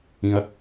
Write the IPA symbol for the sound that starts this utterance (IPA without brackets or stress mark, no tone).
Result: ĩ